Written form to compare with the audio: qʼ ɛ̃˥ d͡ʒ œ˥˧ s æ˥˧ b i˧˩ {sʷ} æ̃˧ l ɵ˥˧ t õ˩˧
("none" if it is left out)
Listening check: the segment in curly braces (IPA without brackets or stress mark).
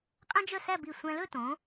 sʷ